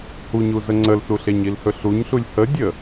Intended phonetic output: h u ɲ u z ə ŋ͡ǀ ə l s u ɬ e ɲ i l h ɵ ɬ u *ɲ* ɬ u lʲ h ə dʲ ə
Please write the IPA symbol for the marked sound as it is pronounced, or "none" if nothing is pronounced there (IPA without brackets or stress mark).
ɲ